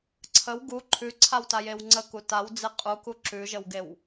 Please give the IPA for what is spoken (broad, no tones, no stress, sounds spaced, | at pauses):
ǀʰ ə w ɡ u ǃʰ ʉ ǀʰ a w t a j e w ŋ͡ǀ ə k u t a w d͡z e qʼ u k u ǁ ʉ ʒ ə w ɡ e w